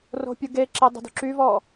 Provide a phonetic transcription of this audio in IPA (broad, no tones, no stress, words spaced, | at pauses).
ro̤pʲuɡeǁe dˤə̤dṳǁyvɔ